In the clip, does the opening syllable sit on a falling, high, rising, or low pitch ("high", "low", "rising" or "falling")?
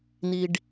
low